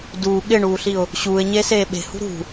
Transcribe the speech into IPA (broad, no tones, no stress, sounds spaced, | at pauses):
d uː ɠ ɪ ɳ uː ɬ i ʊ̯ | ɕ uː ɪ̯ ɲ e s eː ɓ e̤ h ṳ ɾ ṳ